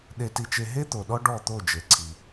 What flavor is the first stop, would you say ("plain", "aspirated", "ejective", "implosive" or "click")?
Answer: implosive